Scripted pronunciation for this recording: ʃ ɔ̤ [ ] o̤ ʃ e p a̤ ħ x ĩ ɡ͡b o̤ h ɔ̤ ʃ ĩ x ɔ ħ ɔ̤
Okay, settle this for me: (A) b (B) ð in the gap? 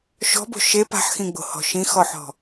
A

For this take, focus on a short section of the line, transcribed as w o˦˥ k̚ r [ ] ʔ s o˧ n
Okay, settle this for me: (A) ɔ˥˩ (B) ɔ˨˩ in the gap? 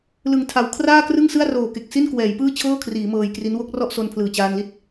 A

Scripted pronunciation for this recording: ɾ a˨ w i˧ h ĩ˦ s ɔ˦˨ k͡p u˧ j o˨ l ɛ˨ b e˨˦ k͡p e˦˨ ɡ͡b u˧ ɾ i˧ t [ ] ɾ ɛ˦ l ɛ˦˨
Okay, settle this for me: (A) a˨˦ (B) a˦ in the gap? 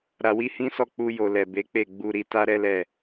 B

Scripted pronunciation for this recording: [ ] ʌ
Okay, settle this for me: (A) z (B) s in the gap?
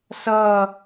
B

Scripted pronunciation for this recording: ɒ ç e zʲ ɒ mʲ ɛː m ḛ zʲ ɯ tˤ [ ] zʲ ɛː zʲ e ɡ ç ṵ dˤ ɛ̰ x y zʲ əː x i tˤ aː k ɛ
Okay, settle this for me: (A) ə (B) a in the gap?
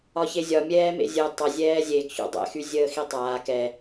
A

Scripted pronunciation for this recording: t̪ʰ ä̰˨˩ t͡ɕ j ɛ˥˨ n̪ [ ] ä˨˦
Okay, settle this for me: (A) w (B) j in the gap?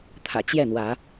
A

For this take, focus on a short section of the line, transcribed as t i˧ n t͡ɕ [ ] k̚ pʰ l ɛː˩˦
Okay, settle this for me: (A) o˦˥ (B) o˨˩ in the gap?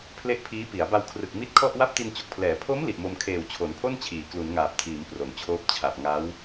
B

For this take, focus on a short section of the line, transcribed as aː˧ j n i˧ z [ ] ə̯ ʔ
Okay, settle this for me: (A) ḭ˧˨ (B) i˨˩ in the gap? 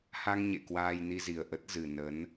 B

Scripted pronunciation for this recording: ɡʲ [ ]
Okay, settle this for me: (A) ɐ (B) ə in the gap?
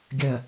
A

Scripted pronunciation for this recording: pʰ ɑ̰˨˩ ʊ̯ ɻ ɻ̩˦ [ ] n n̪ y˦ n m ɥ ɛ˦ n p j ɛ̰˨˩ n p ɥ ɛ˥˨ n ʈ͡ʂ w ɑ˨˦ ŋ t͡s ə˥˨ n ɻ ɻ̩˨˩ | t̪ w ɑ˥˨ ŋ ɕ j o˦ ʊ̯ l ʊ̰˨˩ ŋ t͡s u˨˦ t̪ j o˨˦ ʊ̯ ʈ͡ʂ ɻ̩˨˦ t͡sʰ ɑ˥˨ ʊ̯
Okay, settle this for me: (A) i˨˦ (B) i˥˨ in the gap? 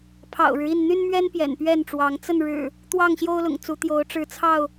B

